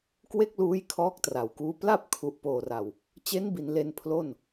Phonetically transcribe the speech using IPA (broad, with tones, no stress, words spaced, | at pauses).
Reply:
kwe˥˩k̚luː˦˥j kʰɔː˦˥k̚tra˩˦wkuː˦˥ pla˥˩p̚kʰu˨˩ʔpoː˨˩ra˨˩w | t͡ɕe˦˥nbi˩˦n le˧npʰlo˥˩n